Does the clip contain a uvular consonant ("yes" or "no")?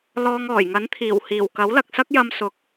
no